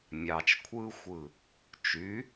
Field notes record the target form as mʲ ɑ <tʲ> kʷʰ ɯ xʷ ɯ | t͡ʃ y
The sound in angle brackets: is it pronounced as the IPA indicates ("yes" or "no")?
no